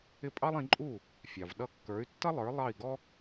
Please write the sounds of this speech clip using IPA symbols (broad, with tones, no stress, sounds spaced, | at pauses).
ɪ˥˩ pʼ ɑ˥ lˠ ĩ˩˥ ǃʼ uː˥˩ | fʲ ɑ˩ v ɗ ʌ˧ kː ə˞˩˥ y̯ tː ʌ˥ lˠ ə˞˩˥ lˠ ɑ˥˩ i̯ ɡ ɔ˥